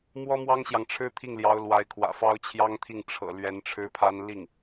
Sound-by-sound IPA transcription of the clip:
m w ɔ˥ m w ɑ˥ ŋ ɕ j ɑ˨ ŋ ʈ͡ʂʰ ɻ̩˥ t̪ʰ i˥˩ ŋ l j ɑ˧˥ ʊ̯ l w a˧˥ ɪ̯ kʰ w ä̰˨˩ f ɑ˥ ʊ̯ t͡ɕʰ j ɑ˥ ŋ t̪ʰ i˥˩ ŋ ʈ͡ʂʰ ɤ̰˨˩ l ɥ ɛ˧˥ n ʈ͡ʂʰ ɻ̩˥ pʰ a˥ n l i˥˩ ŋ

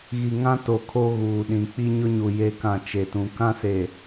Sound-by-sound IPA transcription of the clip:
ɣ i˨ ŋ ã˦ t o˨ kʰ o˦ ɣ uː˨ ɗ ĩ˨ k͡p i˦ ɲ ʊ˦ ɲ u˨ j e˦ k ã˦˨ t͡ʃ e˨ t ũ˨ k ã˦ s e˨

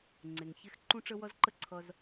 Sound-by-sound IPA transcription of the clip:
ŋ͡ǀ e˩ ŋ ç e˥ x ǃ ũ˥ ʈ͡ʂ ə˥ w ʌ˥ z ǃ ə˥ ǀʰ ʌ˧ z

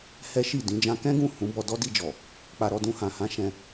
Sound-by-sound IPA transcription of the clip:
h ɛ˦ ʃ i˦˨ d ĩ˨˦ d͡ʒ ã˧ k ɛ̃˦ ɡ ũ˦˨ h ũ˨˦ b ɔ˧ d ɔ˦ d i˧ d͡ʒ ɔ˨ | k͡p a˧ ɾ ɔ˧ d ũ˧ h ã˨ h ã˨˦ ʃ ɛ̃˧

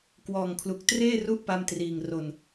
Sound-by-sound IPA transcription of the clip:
k w ɔː˨˩ ŋ kʰ l u˨˩ k̚ t r eː˥˩ r u˥˩ ʔ p a˧ m t r iː˨˩ ŋ r o˨˩ n

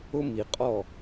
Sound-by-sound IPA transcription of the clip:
ʊ˦ m i˨ qʼ ɔ˦˨

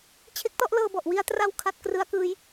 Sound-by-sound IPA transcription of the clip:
t͡ɕʰ e˦˥ k̚ t ɔ˥˩ ʔ l ɤː˧ b ɔ˨˩ ʔ w i˧ a̯ t r a˧ w kʰ a˦˥ t̚ k r ɯ˦˥ a̯ k ɯː˦˥ j

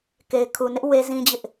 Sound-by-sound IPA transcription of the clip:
k e˨ ɪ̯ kʰ u˨ n ɪ˦ ʔ w e˦ z ĩ˦ d͡ʑ ɪ˦ ʔ

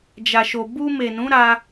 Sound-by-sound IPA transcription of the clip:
d͡ʒ a˨ ʃ o˨ b u˧ m e˨ n ũ˨˦ ɾ a˧

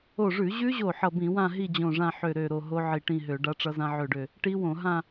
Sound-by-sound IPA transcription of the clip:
o˧˩ ʐ ʉ˧˩˧ ʑ ʉ˦˥ ʑ o˧˩ ħ ʌ˧˩ b ĩ˧˩˧ w ã˥˧ ɦ i˥˧ d͡ʑ õ˧˩ ʐ ã˥˧ ħ ø˧˩ ɾ ø˧˩ ɾ o˧˩ ɦ o˦˥ ʕ i˧˩ ʈ ĩ˥˧ ɦ ø˧˩˧ ɖ a˦˥ ʈ͡ʂ ʌ˦˥ z ã˦˥ ʕ ø˧˩ ɖ ø˧˩ | ʈ i˦˥ w õ˧˩˧ ɦ ã˥˧

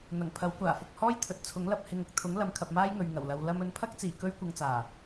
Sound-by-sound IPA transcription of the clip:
n̪ ɐ˨˩ ŋ pʰ ɐ˨˥ w kʷ aː˨˩ f ʊ˨ k̚ h ɔː˥ j t̪ʰ ɵ˨ t̚ t͡sʰ ʊ˨˥ ŋ l ɐ˧ p̚ h ɪ˨ ŋ ʊ˨ k̚ t̪ʰ ʊ˨˥ ŋ l ɐ˨˥ m kʰ ɐ˨ p̚ m aː˥ j ŋ ɵ˨ ɥ ŋ ɐ˨˩ w l ɐ˨ w l ɐ˧ m ɵ˨˧ n pʰ ɐ˥ k̚ t͡s iː˨˩ k ɵ˥ ɥ kʷ ɐ˧ ŋ t͡s aː˨˩

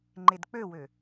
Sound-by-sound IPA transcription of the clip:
ŋ͡ǃ e d k͡p ø w ø

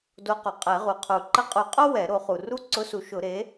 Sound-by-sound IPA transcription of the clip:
d o˧˥ q u˩ qʼ ɛ˨˩˦ ʁ u˩ qʰ u˨˩˦ ǃ ə˧˥ qʼ u˨˩˦ qʼ o˥ w ɛ˨˩˦ ɾ o˨˩˦ χ u˩ r u˥ ǀ ʊ˧˥ s u˩˥ ʃ ʊ˨˩˦ ɾ e˩˥

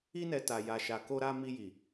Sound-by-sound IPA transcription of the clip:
i˦ n ɛ˧ t a˧ j a˧ ʃ a˧ k o˦ ɾ a˦ m i˧ j i˨

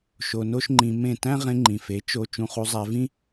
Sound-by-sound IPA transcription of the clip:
ʃ o˧ n o˦ ʃ ŋ͡ǃ ĩ˧ m ẽ˦˨ t æ̃˦ ʁ ẽ˧ ŋ͡ǃ ĩ˨ f e˨˦ t͡ʃ o˧ t͡ʃ ũ˧ χ u˧ zˤ æ˧ v ĩ˦

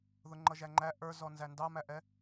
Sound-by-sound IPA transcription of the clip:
ð ʊ ŋ͡ǃ ʌ ʒ æ ŋ͡ǃ æ ʔ ə˞ z ɔ n z æ n d ɑ m æ ʔ ɛ

